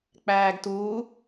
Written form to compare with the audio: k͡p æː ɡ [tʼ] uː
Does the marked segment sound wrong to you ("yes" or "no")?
yes